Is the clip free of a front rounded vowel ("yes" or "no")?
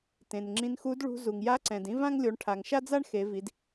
yes